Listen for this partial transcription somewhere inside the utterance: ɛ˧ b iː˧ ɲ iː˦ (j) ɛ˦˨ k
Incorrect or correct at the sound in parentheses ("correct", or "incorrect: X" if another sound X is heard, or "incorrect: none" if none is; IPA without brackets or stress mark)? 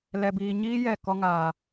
correct